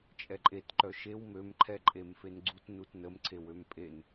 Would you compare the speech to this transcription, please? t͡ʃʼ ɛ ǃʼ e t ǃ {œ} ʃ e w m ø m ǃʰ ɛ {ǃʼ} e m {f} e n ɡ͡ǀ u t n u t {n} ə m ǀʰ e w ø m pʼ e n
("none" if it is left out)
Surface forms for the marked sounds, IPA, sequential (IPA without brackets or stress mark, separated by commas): œ, ǃʼ, f, n